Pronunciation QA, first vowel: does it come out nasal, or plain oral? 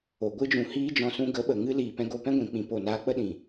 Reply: oral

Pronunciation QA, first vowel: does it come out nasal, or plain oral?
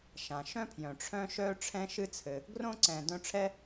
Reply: nasal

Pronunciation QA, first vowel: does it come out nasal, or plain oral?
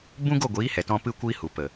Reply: nasal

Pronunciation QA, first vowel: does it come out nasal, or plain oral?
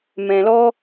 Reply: nasal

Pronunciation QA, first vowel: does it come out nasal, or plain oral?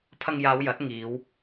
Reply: oral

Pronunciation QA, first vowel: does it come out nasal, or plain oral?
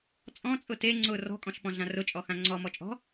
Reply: nasal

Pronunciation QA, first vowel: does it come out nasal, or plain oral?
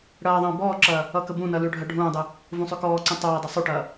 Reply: oral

